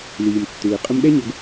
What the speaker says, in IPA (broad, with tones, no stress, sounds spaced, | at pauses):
l iː˨ m tː ɯː˨ qʼ ɯ˦ m ɗ ɛ˦ ɲ ɤ˨ ɡ